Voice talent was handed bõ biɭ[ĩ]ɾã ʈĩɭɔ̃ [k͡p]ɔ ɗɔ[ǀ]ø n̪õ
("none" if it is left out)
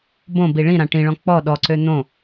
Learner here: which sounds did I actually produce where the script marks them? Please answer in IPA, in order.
ĩ, k͡p, ǀ

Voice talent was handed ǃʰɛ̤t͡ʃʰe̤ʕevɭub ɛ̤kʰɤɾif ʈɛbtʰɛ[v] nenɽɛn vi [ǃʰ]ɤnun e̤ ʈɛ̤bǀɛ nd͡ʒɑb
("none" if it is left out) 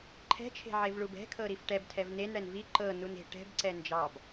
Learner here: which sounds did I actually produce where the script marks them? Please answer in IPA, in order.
v, ǃ

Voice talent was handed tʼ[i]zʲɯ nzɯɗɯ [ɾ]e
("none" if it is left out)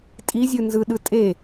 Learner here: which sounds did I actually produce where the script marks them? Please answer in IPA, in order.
i, tʼ

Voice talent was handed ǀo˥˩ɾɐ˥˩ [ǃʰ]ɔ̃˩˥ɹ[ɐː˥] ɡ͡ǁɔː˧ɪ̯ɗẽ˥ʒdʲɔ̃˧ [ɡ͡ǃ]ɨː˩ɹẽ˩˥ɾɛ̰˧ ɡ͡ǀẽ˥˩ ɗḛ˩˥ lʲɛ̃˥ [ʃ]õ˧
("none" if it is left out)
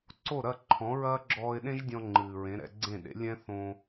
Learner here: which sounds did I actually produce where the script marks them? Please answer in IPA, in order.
ǃʰ, ɐː˥, ŋ͡ǃ, θ

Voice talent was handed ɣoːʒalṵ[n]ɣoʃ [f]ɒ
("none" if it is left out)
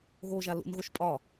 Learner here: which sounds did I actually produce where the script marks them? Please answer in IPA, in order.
n, pʼ

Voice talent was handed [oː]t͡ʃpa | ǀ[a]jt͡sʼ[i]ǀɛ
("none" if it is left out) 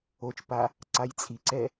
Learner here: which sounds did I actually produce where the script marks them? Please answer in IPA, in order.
o, a, i

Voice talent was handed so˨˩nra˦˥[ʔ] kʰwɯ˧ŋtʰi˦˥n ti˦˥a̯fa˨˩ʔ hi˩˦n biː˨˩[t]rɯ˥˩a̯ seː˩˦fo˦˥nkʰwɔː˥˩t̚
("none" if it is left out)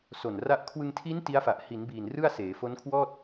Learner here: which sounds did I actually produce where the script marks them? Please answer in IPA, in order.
ʔ, n

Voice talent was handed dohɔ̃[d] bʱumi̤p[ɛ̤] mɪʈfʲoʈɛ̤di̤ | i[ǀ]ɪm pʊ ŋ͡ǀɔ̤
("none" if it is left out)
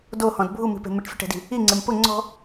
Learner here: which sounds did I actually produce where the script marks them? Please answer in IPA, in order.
d, e̤, ŋ͡ǀ

